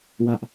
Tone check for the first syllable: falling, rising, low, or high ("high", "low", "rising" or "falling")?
high